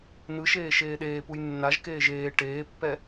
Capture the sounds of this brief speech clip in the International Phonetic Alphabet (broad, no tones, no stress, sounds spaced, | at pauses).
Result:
n ɯ ʃ eː ʃ eː ɗ eː p u j nː a ʒ k eː ʒ eː ʈ eː pː ɛ